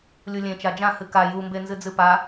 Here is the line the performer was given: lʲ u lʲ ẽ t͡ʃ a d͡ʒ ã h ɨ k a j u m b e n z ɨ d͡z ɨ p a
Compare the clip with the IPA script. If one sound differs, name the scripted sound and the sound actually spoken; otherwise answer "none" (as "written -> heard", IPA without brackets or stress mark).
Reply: none